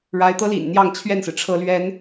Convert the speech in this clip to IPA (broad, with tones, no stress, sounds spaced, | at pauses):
ɻ a˧˥ ɪ̯ t̪ ɤ˥ l ḭ˨˩ n n̪ j ɑ˥˧ ŋ t͡ɕʰ ɥ ɛ˥˩ n s ɹ̩˩ ʈ͡ʂʰ ɤ˧˥ l ɥ ɛ˧˥ n